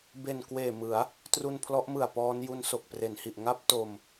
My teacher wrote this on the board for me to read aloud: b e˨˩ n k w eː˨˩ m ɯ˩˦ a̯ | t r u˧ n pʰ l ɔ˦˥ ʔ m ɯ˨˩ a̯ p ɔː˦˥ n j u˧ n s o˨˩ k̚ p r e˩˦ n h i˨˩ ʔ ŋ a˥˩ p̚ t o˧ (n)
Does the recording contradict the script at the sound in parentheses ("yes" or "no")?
yes